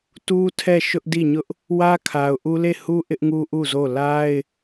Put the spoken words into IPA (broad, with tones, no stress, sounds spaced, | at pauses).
t u˦ tʰ ɛ˦˨ ʃ ʊ˦ ʔ d i˦˨ ɲ ʊ˦ ʔ | w ä˦ kʰ a˨ ʊ̯ ʔ u˦ l e˦˨ h u˦ ʔ ɪ˦ ʔ ŋ u˦ ʔ u˦˨ z o˦˨ l a˦ ɪ̯